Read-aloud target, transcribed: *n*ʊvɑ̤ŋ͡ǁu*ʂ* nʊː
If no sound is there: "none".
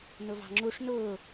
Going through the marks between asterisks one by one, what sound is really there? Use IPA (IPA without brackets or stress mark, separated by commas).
n, ʂ